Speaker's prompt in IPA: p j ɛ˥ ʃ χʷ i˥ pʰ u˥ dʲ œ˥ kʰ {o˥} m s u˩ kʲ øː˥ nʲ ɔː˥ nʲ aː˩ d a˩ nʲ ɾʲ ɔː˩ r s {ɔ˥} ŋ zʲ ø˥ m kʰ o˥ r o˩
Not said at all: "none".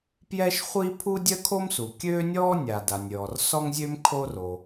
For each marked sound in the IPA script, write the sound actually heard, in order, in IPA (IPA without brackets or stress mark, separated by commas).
o˥, ɔ˥